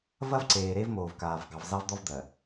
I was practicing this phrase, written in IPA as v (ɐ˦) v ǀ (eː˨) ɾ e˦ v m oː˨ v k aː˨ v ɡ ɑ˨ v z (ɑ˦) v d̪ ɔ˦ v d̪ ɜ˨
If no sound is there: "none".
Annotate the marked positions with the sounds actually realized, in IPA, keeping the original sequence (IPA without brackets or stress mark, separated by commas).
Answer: ɐ˦, eː˨, ɑ˦